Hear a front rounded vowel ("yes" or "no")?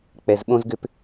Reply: yes